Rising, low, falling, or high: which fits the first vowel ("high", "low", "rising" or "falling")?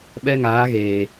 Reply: high